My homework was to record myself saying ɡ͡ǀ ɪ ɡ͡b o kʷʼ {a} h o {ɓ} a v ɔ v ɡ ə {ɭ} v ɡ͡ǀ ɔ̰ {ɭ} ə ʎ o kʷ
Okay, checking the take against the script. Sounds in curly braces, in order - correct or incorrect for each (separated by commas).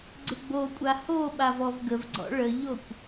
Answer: correct, correct, incorrect, correct